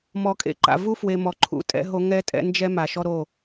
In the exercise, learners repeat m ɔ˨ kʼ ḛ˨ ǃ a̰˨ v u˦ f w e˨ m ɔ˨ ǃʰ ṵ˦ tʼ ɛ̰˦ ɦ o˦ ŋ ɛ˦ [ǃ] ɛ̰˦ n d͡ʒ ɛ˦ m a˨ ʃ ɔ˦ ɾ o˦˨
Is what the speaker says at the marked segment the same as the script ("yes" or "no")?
no